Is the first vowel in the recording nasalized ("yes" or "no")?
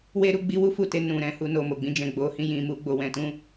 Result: no